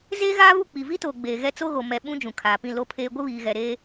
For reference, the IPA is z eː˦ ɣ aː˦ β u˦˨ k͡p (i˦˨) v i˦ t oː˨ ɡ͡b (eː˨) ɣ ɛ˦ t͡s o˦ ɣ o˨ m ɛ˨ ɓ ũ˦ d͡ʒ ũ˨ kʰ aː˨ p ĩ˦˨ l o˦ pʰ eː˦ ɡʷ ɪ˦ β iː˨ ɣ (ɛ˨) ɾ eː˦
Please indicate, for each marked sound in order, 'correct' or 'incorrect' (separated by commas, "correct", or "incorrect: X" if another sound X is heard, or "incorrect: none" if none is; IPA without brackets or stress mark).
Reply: incorrect: i˨, correct, correct